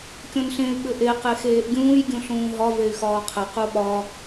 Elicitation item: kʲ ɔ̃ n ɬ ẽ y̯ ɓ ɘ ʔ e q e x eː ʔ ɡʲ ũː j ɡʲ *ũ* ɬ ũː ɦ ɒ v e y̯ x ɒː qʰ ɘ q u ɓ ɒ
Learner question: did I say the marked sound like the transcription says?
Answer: yes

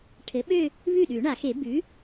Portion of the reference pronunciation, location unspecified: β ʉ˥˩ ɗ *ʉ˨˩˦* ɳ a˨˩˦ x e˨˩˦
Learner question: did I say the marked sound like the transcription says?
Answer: yes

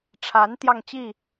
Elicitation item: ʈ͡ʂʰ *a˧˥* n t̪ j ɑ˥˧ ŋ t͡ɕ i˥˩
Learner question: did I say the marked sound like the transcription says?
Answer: yes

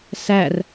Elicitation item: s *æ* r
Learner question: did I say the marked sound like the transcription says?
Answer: yes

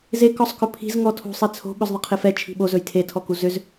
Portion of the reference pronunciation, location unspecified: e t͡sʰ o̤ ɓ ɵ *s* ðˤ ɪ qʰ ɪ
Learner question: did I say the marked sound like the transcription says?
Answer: no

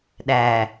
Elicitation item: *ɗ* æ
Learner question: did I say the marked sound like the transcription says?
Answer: yes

